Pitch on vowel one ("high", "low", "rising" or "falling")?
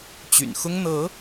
low